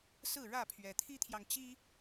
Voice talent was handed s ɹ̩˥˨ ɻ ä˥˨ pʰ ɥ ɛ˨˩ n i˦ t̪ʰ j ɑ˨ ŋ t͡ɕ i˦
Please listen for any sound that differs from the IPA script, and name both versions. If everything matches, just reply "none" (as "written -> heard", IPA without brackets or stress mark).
n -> t̪ʰ